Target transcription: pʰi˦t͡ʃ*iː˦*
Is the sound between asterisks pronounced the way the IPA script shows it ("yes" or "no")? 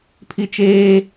no